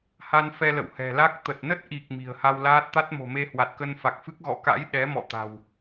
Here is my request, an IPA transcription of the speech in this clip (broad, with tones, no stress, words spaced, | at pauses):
ha˧n fɛ˧lə̰˧˨whɛ̤˨˩la˦˥k̚ t̪ə˨˩t̚nə˦˥t̚ʔi˨˩k̚ mi̤˨˩ə̯ha˧wlaː˦˥t̚ t̪a˦˥t̚mo̤˨˩me˧ hwa˨˩t̚kə˧nfa˨˩k̚fɨ˦˥k̚ ɣɔ̰˧˨ka̰˧˥j ɗɛ˨˦ mɔ̰˧˨ t̪a̤˨˩w